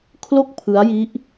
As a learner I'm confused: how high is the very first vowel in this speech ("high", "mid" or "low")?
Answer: mid